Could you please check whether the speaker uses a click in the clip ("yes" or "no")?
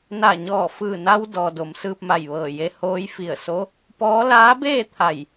no